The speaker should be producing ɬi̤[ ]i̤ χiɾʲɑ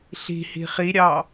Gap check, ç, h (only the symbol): h